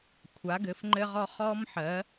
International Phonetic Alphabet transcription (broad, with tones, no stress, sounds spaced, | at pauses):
kʷʰ a˨˥ ɡ ɘ˨˥ f ŋ͡ǃ ɘ˥ ʁ ɔ˥ χ ɔ˥ m ħ ɜ˨˥